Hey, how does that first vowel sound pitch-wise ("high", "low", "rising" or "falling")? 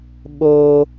high